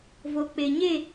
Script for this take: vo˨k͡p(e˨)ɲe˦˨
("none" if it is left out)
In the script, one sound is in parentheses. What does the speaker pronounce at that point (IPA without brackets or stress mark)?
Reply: e˨